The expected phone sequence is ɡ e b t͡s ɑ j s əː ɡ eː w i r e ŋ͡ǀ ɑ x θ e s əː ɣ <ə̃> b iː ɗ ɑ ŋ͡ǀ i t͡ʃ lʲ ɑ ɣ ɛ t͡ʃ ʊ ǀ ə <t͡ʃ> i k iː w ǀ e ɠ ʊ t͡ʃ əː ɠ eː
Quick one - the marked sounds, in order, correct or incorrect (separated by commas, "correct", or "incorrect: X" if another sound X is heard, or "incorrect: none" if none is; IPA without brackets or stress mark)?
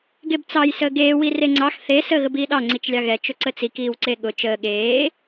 incorrect: ə, incorrect: t͡s